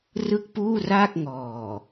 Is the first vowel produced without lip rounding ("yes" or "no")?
yes